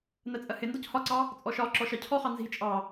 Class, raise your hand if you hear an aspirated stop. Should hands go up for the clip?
yes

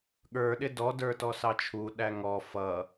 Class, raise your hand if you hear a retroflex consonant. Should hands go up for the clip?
no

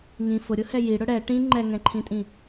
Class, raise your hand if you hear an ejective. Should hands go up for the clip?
yes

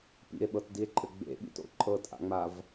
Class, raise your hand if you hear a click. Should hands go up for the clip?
yes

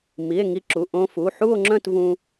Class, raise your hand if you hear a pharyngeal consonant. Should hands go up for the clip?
yes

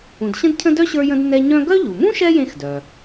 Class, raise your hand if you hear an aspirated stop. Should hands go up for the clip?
yes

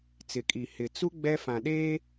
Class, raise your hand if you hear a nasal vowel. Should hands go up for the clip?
yes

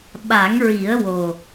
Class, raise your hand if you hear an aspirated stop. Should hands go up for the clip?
no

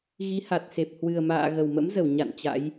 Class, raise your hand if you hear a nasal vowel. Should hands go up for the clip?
no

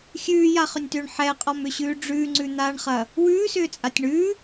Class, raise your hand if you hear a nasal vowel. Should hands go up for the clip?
no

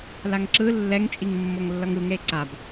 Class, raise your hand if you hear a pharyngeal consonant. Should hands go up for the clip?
no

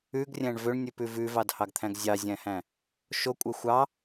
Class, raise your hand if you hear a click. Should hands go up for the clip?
no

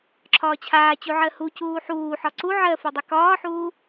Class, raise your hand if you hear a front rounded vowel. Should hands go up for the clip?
no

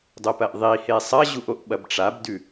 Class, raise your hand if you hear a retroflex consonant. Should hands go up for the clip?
yes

